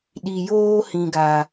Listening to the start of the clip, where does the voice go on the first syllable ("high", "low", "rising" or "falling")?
low